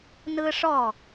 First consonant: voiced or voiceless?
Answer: voiced